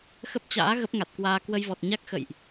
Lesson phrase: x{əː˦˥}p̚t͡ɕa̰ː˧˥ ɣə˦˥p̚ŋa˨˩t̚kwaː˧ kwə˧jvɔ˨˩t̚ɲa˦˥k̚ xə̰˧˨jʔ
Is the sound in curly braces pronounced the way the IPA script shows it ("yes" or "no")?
no